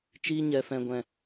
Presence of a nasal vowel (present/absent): present